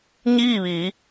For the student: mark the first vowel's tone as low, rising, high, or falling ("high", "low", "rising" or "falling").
falling